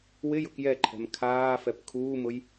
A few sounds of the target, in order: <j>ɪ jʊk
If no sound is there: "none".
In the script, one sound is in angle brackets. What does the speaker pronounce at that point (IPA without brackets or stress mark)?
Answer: w